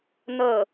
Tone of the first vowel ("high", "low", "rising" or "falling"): falling